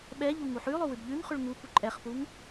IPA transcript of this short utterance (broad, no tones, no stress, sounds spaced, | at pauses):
ɓ ɛ ʎ u ŋ u ħ ʉ lˠ o w ʉ b ʎ ʉ ŋ χ ʉ ɭ ŋ u p u ǃʼ ɛ χ p u ŋ